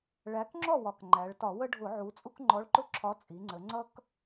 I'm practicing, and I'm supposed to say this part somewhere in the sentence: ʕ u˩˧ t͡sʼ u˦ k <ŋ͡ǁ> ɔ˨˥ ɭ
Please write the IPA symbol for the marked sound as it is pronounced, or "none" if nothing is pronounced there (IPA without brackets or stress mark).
ŋ͡ǃ